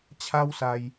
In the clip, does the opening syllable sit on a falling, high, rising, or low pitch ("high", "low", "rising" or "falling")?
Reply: high